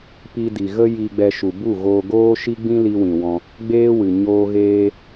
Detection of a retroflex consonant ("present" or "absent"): absent